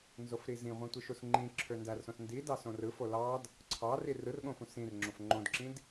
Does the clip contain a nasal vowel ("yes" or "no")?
yes